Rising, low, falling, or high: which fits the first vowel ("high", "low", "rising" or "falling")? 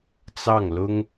falling